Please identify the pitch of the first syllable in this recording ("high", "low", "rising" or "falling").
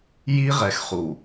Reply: high